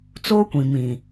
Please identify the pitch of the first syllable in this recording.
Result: high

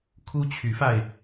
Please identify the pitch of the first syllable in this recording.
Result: high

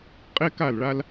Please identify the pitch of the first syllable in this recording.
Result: high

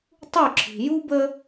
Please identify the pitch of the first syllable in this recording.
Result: falling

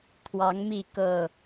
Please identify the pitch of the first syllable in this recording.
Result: rising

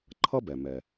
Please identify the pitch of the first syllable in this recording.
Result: high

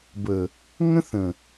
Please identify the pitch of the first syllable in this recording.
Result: low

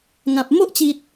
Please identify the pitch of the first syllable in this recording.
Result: low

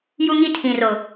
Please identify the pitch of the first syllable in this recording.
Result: high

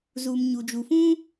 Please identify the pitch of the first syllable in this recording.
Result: low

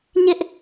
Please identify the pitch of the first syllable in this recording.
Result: high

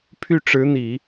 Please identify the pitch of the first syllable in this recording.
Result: falling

